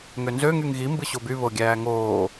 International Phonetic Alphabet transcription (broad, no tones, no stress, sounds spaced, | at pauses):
ŋ ø n z ø ŋ y ŋ ɣ i m b ɯ ɕ o b y β o ɡʲ æː ŋ oː